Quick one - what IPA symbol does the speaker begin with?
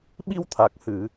ɓ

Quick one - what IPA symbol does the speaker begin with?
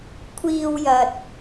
kʷʰ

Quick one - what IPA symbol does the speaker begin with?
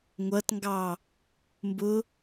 ŋʷ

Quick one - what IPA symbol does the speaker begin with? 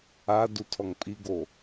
a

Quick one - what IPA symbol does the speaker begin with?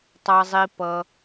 tˤ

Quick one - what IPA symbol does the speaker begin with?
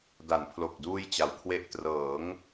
d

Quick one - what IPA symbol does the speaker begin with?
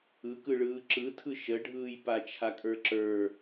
ɯ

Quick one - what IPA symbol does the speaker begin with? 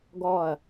ɡ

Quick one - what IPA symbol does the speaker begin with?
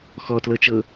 x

